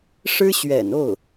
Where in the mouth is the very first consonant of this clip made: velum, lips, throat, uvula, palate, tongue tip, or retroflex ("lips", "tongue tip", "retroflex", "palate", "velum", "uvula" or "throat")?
retroflex